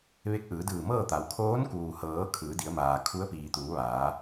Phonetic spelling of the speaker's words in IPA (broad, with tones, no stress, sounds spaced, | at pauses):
ʋ e˧˥ k̚ ʔ ɯː˩˧ d ɯː˧˩ m ɤː˥˨ t̪ a˩˧ w kʰ oː˧˥ n k uː˩ h ɤː˩˧ kʰ ɯː˩˧ d i˩˧ ə̯ m aː˩ kʰ u˧˥ ə̯ p iː˩ t̪ uː˩˧ ʋ aː˩˧